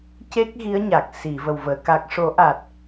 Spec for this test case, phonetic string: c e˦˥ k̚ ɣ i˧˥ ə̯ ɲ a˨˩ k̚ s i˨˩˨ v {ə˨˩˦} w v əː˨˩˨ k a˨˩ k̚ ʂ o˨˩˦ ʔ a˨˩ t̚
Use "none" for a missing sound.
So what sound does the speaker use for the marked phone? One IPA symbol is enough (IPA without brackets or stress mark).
ə˨˩